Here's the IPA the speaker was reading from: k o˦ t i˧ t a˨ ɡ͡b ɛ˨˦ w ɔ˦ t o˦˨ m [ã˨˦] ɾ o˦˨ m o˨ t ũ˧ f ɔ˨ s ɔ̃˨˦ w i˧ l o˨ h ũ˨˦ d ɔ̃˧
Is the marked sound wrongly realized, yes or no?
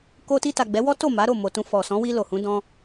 yes